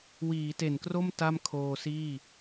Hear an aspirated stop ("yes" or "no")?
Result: yes